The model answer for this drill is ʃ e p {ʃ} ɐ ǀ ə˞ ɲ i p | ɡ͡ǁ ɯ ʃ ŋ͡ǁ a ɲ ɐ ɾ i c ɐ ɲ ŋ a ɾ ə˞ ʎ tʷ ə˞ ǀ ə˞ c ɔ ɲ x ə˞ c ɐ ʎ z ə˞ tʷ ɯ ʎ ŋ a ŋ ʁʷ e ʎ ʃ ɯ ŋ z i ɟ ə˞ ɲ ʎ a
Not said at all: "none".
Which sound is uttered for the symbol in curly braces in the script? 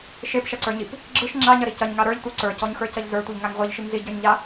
ʃ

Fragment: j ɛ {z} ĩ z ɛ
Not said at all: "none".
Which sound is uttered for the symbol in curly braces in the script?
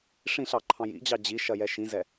ʃ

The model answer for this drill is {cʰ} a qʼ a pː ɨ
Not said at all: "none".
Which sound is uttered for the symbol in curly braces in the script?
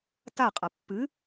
t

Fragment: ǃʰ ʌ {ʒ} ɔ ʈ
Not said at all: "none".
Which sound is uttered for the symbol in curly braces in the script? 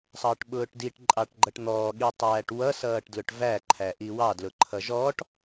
ʒ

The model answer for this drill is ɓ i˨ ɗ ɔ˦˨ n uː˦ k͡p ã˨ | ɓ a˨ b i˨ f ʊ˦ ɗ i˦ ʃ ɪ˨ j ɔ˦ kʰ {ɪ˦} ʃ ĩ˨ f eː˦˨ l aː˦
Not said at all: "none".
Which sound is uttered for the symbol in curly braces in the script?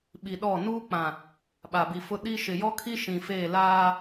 i˦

